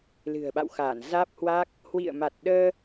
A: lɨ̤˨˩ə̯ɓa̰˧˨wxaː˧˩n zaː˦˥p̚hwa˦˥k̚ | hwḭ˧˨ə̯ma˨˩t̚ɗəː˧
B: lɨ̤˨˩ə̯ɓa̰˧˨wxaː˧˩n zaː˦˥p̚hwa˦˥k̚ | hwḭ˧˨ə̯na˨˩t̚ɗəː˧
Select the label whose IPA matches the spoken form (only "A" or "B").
A